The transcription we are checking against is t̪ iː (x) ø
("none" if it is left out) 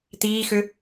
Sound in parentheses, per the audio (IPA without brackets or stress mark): x